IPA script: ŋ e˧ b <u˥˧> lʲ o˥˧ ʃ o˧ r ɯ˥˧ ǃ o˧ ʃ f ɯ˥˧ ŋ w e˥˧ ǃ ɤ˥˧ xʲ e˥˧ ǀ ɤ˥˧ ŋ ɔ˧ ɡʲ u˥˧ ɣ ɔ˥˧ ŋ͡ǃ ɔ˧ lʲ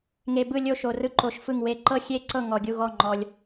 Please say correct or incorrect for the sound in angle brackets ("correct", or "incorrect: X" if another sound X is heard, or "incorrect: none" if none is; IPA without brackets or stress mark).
incorrect: ɯ˥˧